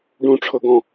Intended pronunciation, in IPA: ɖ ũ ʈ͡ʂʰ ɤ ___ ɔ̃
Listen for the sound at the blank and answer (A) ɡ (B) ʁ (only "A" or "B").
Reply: A